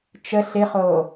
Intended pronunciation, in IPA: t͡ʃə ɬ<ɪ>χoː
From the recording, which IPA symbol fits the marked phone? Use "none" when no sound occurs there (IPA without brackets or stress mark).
ɪ